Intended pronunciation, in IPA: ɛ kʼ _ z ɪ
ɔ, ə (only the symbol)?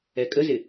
ə